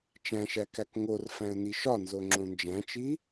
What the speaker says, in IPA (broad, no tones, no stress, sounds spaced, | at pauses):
t͡ʃ æ̃ ʃ æ k æ k ŋ o r f æ̃ ə̯ n i ʃ ɒ n z o ŋ͡ǁ õ n d͡ʒ æ̃ t͡ʃ i